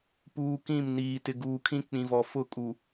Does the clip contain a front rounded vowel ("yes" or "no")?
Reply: no